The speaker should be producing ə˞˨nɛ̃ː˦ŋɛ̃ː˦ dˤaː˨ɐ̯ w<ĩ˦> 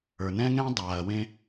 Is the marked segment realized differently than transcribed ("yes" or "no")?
yes